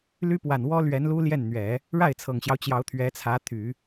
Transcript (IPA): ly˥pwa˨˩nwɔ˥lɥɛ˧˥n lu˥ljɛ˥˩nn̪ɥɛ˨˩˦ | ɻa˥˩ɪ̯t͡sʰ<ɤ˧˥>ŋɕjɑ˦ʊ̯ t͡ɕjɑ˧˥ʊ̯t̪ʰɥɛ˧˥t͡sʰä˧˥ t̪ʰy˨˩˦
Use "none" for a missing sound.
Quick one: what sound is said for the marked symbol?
ɤ˨˩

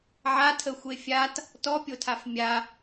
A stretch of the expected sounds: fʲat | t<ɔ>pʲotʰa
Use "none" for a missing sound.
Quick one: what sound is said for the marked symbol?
ɔ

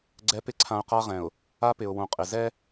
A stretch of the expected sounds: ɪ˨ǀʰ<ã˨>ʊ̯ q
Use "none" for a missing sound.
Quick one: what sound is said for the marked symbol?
ã˨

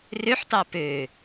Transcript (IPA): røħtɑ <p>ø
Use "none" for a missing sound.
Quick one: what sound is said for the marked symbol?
p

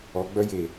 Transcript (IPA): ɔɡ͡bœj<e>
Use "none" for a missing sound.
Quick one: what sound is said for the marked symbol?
e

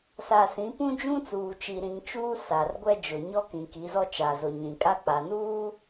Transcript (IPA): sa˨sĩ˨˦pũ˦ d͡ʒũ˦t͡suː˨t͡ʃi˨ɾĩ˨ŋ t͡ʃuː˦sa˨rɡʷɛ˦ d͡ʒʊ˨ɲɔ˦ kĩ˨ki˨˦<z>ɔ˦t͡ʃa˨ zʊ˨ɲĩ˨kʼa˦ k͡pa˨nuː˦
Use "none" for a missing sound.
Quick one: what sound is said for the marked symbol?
z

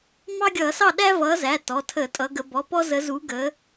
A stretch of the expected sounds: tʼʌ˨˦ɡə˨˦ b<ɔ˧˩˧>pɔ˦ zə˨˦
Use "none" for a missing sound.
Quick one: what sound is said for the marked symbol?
ɔ˩˧˩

